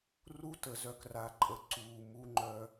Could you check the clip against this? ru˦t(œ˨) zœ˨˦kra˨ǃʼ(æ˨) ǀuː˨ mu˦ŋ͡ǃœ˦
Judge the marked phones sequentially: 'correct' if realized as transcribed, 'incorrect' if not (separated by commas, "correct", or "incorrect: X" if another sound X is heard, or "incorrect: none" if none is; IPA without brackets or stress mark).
incorrect: ə˨, incorrect: ə˨